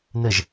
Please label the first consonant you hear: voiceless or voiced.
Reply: voiced